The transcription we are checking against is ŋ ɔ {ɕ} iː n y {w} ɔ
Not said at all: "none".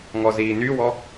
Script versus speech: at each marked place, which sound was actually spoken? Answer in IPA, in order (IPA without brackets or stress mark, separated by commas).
z, w